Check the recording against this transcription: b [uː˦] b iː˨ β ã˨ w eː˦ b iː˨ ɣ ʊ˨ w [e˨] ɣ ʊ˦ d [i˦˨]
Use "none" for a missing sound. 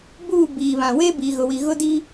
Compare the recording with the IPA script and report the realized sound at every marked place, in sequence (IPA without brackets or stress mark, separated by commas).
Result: uː˦˨, i˨, i˦